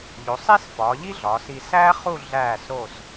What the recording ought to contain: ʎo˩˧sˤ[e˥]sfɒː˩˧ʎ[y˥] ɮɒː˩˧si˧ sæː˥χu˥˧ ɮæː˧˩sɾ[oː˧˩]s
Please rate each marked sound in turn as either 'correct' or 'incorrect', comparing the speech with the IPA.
correct, incorrect: i˥, correct

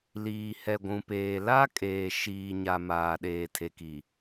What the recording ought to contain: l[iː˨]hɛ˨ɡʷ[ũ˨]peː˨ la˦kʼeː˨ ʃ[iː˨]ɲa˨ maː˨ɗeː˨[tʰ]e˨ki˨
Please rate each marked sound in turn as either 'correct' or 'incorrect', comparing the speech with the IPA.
correct, correct, correct, correct

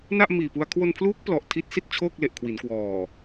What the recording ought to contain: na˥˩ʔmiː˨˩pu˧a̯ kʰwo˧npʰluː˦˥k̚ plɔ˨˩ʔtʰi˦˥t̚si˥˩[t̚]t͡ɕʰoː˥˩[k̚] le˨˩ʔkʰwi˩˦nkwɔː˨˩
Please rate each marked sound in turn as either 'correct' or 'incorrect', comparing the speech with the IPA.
correct, correct

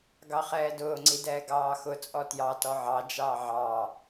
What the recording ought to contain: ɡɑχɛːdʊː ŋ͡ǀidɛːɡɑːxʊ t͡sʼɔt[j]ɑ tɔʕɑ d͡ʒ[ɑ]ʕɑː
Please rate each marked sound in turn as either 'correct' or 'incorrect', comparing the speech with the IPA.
correct, incorrect: ɑː

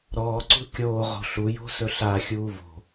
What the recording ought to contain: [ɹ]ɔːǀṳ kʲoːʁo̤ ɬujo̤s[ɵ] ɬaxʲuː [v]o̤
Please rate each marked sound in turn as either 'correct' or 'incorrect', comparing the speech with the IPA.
incorrect: ɾ, correct, correct

